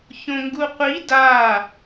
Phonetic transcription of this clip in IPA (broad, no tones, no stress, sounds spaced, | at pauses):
ç õ ŋ ɡ u qʷ i d a